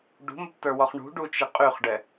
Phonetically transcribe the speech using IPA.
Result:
ɖ ṳ m ə p t ə˞ w ɔ χ ɳ ṳ ɖ u t͡ʃ ɪ qʼ y χ ɖ ɛ

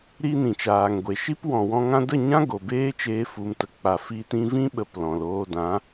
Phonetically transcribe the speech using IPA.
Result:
ɾ i˦ n ĩ˨ t͡ʃ aː˨ ŋ ɡʷ e˨ ʃ i˦ p w ɔ̃˨ w ɔ̃˧ ŋ ã˦ d ə˦˨ ɲ ã˦ ɡ o˨ b eː˦ t͡ʃ eː˧ f u˨ m t ə˨ k͡p a˨ f i˧ t ĩ˧ v ĩ˦ ɓ ə˧ p l ɔ̃˨ l oː˧ d ã˨˦

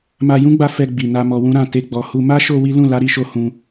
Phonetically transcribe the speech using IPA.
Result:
m a˧ j ũ˦ ɡ͡b a˧ f ɛ˧ ɡ͡b i˨ n a˧ m ɔ˧ w ũ˦ ɾ ã˦˨ t e˧ ɡ͡b ɔ˨ h u˧ m a˦ ʃ o˧ w i˦ l ũ˦˨ l a˨˦ ɾ i˧ ʃ o˧ h ũ˧

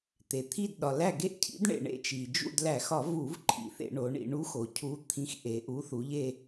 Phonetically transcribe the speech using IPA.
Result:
t̪ e˩ t̪ʰ i˦˨ d ɗ ɒ˩ l æ˦˨ ɡ e˦˨ ʔ cʰ ḭ˨˥ d ɳ ḛ˩ ɳ ḛ˧˩˧ t͡ʃ i˩ d͡ʒ ṵ˦˨ d l æ˧˩˧ x ɒ˧˩˧ v u˧˩˧ v ǃʰ ḭ˩˧ θ ḛ˧˩˧ ɳ o˩˧ ɳ ḭ˩˧ ɳ u˨˥ x o˩ cʰ u˩˧ t̪ʰ ĩ˨˥ x ʔ e˩ ʔ u˨˥ θ u˩˧ ʎ e˦˨

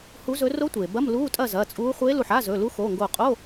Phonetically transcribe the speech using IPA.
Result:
h u˧˥ z ɵ˧˥ r o˧˥ tʷ eː˩ b ɐ˧˥˧ m l uː˧˥˧ tʼ ɐ˥˨ z ɐː˩˧˩ t͡sʼ uː˧˥ χʷ e˧˥ l u˧˩ ħ a˧˥˧ z ɵ˩˧˩ l u˧˥ x oː˩˧˩ ŋ ɡ oː˧˩ qʼ o˧˥˧

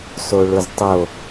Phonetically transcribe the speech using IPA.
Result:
s o ɭ ʊ z tˤ o

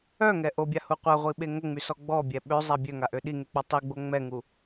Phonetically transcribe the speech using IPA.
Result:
œ ŋ ɛ ʔ o bʲ a h u qʷ a ʁʷ i ɓ e ŋ ə ŋ͡m y s ɔ ɡ͡b ɔ bʲ ɛ ɓ ø zˤ a bʲ ø ŋ a ʔ ø ɗ i ŋ y k͡p ɔ tˤ i ɡ͡b o ŋ͡m ɛ ŋ u

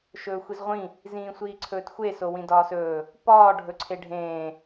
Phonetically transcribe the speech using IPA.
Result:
ʃ ɵː xʷ i z ʁʷ ĩ | z ĩː sʷ iː ǀʰ ɵː t xʷ e s o w ĩ d ɒː s ɵː | p ɒː ɖʱ ɵ ǀʰ e ɖʱ ẽː

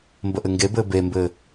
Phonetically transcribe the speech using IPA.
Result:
m b ə ʔ ɘ ŋ ɡ e b ɘː b e m b ɘː

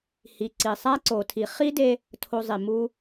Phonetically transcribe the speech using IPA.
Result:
h i˨ ǀ i˨ sˤ æ˦ ǀ o˨ tʰ i˨ χ i˦ d e˧ | tʰ o˧ zˤ i˨ m u˧

